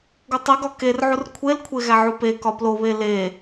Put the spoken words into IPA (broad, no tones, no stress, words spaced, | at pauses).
ɡutˤiɡɒ kerʕur kʷʰelkʷʰe ɣæʕupekɒ ploβe le